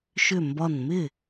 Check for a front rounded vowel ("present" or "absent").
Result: present